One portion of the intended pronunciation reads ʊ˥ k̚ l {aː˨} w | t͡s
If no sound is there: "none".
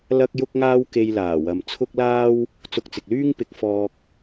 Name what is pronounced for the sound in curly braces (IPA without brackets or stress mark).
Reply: aː˥